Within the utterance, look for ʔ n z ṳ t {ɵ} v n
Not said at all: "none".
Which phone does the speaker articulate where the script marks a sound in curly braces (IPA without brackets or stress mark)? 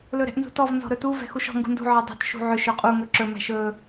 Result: ɔ